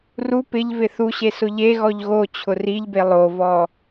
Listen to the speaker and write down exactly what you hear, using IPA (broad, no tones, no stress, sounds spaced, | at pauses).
r u p ɪ ʎ v ɪ θ u ɕ e s ʊ ʎ e ɣ ɔ ʎ ɣ o t͡ɕʰ ʊ r i ʎ b e lˠ o v ɔ